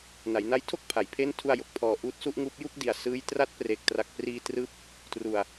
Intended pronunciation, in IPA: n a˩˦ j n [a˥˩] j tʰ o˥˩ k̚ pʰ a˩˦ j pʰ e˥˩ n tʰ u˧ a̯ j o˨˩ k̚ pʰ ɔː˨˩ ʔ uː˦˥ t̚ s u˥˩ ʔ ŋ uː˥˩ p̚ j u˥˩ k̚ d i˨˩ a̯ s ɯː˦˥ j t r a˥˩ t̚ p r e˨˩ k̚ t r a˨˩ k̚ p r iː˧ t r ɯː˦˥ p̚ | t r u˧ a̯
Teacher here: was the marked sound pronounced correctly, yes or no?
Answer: no